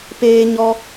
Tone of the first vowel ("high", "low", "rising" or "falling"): high